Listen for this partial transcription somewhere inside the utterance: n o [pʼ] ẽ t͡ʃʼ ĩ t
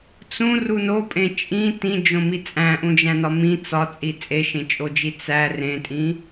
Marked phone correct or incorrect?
correct